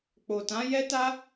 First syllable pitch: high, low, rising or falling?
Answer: low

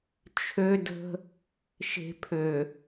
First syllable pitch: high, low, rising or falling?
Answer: high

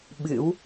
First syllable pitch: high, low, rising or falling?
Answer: rising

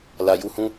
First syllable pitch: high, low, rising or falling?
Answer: low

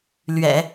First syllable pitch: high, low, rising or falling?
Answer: low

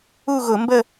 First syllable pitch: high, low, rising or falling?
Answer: falling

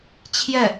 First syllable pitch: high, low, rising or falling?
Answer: falling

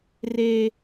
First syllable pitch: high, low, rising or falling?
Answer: high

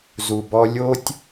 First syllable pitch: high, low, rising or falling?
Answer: low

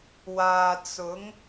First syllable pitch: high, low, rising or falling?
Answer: low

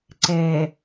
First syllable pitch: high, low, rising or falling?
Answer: low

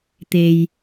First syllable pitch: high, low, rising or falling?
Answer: low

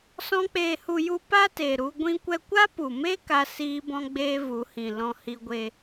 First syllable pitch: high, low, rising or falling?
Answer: high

